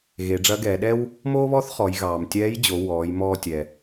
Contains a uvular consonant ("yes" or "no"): yes